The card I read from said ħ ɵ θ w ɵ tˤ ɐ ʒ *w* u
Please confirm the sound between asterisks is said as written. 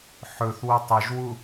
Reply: yes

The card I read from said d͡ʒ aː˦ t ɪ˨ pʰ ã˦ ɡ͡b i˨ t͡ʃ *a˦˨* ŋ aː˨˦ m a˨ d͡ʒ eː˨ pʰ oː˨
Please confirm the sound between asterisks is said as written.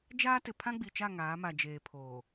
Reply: yes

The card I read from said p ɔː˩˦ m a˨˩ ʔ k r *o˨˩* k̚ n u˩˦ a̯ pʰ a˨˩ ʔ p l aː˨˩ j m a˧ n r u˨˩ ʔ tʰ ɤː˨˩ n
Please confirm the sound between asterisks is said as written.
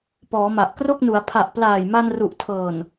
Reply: no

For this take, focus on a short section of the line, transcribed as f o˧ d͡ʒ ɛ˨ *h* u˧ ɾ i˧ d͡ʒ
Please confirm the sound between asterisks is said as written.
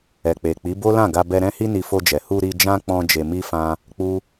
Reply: yes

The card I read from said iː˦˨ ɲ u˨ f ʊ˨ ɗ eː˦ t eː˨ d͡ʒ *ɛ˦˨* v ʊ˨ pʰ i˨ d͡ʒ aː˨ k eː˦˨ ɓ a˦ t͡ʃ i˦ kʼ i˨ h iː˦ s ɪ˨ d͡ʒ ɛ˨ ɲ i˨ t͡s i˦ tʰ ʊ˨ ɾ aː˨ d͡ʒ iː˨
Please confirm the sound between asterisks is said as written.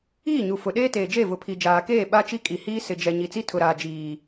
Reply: no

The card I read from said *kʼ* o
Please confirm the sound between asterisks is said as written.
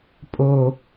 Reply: no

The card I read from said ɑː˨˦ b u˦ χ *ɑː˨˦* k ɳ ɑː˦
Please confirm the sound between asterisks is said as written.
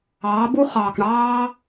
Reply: no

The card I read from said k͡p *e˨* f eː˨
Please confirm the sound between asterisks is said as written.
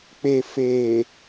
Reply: yes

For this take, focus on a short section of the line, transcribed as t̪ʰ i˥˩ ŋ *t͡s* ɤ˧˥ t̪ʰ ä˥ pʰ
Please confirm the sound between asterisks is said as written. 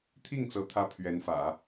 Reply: yes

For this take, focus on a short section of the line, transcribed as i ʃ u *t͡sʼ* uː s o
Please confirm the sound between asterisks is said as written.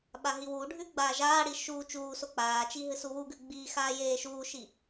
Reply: no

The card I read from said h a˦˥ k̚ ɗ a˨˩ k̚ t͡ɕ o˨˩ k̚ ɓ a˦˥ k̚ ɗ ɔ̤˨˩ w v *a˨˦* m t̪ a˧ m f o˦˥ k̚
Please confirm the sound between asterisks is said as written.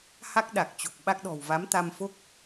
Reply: yes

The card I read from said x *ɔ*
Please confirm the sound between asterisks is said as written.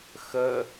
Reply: no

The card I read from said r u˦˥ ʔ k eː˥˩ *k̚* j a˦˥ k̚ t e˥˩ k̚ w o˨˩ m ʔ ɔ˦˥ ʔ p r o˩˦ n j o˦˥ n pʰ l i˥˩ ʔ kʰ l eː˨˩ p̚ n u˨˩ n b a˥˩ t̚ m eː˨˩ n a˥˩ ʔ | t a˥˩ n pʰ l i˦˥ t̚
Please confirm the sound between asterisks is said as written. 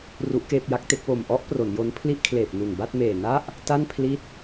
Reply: no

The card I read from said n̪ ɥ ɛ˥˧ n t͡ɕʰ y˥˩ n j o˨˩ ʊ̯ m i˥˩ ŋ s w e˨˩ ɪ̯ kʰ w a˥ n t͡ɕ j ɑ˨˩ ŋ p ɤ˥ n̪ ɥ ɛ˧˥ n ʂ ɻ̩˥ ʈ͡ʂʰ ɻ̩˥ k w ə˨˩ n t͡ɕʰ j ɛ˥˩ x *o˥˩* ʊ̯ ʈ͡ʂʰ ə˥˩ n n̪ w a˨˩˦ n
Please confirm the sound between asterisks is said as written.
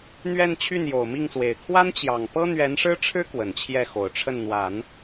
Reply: no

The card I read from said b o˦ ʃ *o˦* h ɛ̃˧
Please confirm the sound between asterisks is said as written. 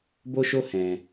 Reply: yes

